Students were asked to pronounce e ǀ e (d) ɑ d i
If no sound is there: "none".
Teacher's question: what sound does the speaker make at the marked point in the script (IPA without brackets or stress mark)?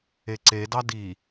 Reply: d